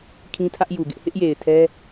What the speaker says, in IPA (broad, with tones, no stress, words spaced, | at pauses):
kʰĩ˦tʰä˦ʔju˨ɡɪ˦ʔ hɪ˦ʔje˨ɪ̯ tʰɛ˦